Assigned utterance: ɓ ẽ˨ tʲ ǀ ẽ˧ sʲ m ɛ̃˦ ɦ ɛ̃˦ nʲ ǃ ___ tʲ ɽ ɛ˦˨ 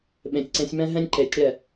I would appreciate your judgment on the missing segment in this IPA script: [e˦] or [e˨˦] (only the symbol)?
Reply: e˨˦